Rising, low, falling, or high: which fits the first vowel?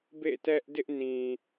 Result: falling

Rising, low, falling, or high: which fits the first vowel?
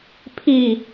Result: falling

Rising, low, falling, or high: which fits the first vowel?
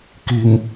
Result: low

